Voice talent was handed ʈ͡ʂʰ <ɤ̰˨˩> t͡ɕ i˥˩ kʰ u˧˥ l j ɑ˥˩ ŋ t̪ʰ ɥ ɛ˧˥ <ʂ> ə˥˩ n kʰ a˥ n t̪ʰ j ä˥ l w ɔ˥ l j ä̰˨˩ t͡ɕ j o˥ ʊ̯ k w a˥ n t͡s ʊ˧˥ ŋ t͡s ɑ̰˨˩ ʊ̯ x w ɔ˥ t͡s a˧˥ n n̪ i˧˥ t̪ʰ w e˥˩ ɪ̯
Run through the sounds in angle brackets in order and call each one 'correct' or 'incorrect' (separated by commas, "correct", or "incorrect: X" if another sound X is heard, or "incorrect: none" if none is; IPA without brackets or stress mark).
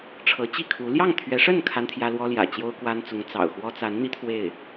incorrect: ɤ˧˥, correct